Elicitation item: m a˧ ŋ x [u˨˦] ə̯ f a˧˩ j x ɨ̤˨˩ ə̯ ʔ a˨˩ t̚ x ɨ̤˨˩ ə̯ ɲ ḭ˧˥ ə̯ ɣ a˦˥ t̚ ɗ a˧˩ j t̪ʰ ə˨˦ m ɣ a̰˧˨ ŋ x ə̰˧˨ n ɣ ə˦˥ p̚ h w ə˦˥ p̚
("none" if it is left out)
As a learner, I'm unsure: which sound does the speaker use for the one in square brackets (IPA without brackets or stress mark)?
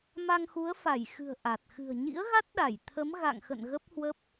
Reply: u˨˦